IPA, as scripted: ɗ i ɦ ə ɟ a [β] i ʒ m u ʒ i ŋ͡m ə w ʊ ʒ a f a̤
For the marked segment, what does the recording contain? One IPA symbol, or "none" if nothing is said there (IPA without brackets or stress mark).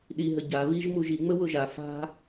β